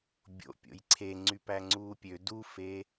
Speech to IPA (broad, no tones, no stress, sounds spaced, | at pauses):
bʲ o̰ pʲ o̰ j ǀʰ e ŋ͡ǀ y p æ ŋ͡ǀ uː pʲ ø d u f e